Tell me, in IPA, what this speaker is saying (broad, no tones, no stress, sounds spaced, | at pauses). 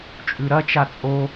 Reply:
t͡ʃʼ ʉ ɾ ɐ t͡ʃ a t͡sʼ o